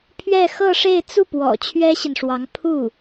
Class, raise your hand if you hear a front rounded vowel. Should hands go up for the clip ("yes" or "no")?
no